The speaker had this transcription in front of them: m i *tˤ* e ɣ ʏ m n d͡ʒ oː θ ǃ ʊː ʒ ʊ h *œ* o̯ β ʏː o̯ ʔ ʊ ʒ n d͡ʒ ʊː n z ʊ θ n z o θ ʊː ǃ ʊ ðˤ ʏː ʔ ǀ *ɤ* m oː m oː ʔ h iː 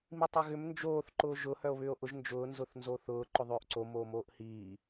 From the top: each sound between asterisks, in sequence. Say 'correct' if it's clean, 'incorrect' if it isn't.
correct, correct, incorrect: o

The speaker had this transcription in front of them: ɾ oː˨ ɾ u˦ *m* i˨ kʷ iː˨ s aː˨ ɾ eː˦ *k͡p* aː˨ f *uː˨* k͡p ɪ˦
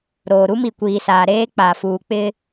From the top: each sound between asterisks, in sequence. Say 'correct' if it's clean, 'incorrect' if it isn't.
correct, correct, correct

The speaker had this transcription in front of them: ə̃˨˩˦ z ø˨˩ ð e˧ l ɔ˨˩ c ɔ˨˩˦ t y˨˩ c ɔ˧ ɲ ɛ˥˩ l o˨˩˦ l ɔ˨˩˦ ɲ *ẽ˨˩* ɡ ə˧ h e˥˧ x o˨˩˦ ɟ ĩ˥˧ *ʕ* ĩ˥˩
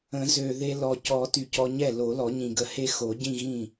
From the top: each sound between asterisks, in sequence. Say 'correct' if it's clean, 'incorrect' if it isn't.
incorrect: ĩ˨˩, incorrect: ɣ

